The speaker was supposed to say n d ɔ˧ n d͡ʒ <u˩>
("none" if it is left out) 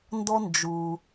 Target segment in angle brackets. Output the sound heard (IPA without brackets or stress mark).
u˩